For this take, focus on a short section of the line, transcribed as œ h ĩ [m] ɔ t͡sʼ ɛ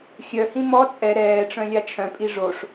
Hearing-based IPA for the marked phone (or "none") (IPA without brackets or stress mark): m